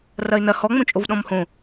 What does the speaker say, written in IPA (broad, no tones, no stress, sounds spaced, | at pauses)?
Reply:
r ɐ ɪ̯ n ɐ h ɔ ŋ͡m õ t͡ʃʼ o v ɗ ɔ̃ m h õ